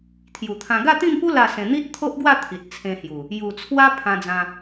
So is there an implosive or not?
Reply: no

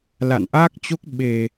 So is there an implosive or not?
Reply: yes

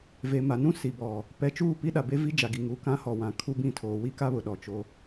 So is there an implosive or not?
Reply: yes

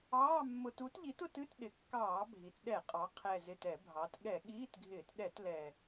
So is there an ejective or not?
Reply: yes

